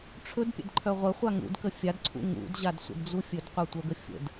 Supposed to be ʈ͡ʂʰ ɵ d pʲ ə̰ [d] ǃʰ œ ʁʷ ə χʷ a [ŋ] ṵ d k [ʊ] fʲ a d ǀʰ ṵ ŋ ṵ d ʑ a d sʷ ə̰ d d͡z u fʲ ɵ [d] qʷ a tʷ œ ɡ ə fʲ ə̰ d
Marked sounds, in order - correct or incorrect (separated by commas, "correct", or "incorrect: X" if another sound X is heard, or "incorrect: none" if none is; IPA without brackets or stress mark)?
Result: correct, correct, incorrect: ə, correct